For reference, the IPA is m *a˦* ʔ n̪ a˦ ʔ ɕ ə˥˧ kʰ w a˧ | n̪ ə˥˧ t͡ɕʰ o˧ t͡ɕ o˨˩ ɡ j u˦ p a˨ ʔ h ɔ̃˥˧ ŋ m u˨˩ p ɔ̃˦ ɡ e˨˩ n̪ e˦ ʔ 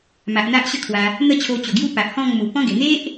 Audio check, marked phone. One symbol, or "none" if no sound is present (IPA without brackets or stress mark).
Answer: a˨